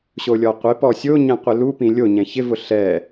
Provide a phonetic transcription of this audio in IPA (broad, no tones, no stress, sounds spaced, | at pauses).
ɕ o lʲ ɔ qʷ ɪ p ɔ sʲ o ɲ ɛ̃ qʷ ɪ l u p ĩ lʲ o ɲ ɛ̃ ç ɪ v ʊ ɬ ɛ